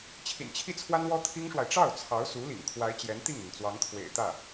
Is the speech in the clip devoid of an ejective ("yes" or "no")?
yes